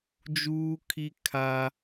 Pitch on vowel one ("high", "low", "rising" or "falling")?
high